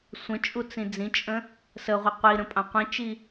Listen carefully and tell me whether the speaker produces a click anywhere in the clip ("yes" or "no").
no